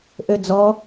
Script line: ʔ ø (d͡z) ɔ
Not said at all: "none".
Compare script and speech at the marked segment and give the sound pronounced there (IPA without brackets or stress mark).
d͡z